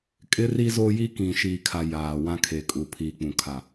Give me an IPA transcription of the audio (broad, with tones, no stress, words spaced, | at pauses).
kʼɪ˦ri˦zoː˦ji˦ kĩ˨ʃiː˨kʰa˨ jaː˨wã˦kʰe˨kʼu˨ pʰiː˨k͡pũ˨ kʰa˨